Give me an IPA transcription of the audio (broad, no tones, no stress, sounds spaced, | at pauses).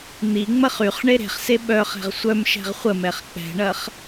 n̪ i ŋ͡m ɐ χ y χ ɳ e ɾ e̤ χ s e ɓ œ χ ɛ̤ ʁ sʷ œ m ʃ ɛ̤ ʁ χʷ ə m ɛ χ k͡p ɛ̤ ɳ ɐ χ